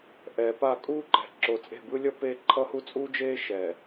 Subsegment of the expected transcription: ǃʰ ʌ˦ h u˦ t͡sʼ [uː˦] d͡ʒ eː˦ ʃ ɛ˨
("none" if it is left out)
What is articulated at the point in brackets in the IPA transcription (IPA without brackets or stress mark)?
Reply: uː˦